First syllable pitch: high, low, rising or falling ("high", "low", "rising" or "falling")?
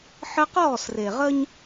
high